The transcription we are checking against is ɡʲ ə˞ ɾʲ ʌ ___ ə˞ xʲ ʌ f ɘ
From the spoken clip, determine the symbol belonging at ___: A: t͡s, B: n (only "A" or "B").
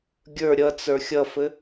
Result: A